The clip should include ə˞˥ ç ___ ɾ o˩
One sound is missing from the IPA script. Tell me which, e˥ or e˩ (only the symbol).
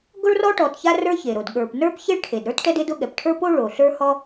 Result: e˩